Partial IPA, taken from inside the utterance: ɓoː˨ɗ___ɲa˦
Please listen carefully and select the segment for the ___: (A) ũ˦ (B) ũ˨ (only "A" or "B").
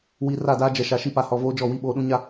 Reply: A